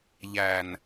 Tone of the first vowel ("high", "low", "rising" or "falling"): low